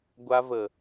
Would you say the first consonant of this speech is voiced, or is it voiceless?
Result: voiced